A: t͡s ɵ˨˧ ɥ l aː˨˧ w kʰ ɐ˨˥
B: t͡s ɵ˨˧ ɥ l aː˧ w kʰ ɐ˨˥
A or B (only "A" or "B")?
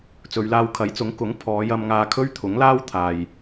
B